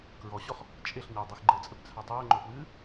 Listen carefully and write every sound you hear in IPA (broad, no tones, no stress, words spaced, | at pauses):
kɹɔɕɔχ | t͡ʃʼeɬɲadˤix ɡ͡ǃɘt͡sʼɘpt͡sʰa tˤɘːŋ͡ǃopwɨː